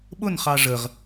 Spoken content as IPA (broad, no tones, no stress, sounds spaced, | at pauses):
ɓ ʊ n χ ɑ ʐ ə ʁ